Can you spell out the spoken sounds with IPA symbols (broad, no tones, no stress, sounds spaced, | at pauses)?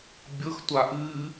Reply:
bʲ ɤ x tʷ a ʔ ɨː